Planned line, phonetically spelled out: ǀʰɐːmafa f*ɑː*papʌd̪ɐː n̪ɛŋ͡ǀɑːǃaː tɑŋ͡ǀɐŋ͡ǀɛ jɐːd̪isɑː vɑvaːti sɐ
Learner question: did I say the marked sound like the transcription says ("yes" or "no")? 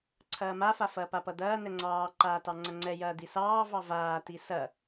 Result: no